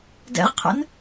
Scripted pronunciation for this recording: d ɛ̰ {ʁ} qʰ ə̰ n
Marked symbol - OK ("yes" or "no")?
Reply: yes